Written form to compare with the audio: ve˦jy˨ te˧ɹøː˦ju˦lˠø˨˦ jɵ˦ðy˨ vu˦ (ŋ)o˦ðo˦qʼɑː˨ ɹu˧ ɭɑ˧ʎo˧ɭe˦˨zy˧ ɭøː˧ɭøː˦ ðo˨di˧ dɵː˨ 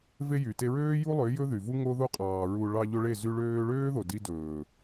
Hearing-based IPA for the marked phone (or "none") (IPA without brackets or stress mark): ŋ